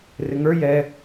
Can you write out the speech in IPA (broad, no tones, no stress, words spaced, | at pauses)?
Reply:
rɪŋə˞ jɛ